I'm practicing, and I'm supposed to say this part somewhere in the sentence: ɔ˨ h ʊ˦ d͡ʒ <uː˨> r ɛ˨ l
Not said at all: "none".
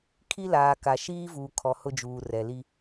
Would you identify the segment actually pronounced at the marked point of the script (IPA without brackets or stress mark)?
uː˨